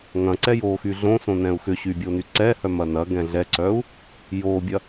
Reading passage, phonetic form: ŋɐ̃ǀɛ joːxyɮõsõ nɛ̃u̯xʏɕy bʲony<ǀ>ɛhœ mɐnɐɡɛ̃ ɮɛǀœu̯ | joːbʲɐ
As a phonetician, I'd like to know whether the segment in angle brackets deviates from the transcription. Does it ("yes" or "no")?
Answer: no